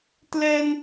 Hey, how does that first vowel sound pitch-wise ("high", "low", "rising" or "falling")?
high